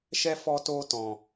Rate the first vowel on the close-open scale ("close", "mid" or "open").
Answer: mid